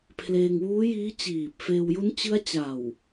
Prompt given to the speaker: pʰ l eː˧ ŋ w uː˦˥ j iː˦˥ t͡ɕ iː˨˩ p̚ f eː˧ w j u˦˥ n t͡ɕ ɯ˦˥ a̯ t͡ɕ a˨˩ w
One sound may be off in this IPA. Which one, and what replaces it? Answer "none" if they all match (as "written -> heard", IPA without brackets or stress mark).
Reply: none